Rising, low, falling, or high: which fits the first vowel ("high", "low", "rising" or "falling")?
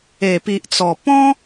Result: low